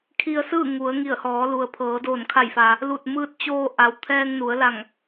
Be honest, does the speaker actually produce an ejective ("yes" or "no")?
no